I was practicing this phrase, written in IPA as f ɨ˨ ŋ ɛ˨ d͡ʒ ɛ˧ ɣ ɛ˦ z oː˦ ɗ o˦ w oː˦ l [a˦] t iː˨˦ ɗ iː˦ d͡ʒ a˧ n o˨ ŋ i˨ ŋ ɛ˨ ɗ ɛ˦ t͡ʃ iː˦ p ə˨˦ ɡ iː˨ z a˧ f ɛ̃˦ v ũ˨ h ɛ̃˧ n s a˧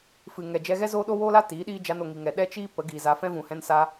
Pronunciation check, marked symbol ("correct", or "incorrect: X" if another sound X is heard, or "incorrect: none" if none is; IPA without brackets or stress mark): correct